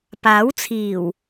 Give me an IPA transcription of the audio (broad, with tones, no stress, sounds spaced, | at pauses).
p aː˨˥ w t͡sʰ iː˨˩ w